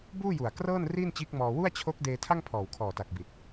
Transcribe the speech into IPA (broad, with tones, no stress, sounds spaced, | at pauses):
b uː˥˩ j u˨˩ a̯ k r ɤː˥˩ n r iː˥˩ n t͡ɕ iː˦˥ k̚ m ɔː˧ w u˥˩ a̯ t͡ɕʰ o˦˥ k̚ d eː˧ tʰ a˥˩ ŋ pʰ ɔː˨˩ w kʰ ɔː˨˩ t a˨˩ k̚ b i˨˩ t̚